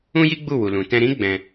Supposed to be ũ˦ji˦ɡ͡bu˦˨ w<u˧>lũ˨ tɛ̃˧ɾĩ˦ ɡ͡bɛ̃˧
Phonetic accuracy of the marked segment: incorrect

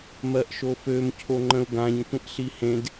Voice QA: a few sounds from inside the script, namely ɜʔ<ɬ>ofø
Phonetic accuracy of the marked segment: incorrect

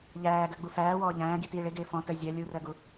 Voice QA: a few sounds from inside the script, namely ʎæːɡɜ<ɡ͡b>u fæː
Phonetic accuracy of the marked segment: correct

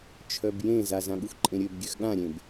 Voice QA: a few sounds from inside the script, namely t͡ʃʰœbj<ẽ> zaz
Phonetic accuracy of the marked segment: correct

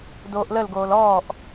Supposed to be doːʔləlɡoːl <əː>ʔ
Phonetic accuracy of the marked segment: incorrect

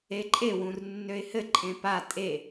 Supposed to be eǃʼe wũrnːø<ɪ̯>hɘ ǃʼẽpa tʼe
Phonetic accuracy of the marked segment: correct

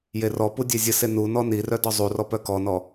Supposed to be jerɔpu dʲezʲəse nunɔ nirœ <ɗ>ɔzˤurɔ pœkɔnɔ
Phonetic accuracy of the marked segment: incorrect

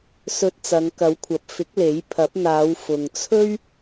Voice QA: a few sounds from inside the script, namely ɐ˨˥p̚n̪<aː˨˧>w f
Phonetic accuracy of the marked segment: correct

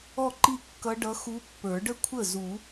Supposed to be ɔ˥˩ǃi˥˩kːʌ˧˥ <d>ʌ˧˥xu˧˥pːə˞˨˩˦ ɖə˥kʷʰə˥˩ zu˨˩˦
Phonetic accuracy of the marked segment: incorrect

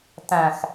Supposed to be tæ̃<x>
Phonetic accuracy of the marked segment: correct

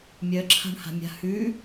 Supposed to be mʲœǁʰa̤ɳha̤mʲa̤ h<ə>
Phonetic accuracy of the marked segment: incorrect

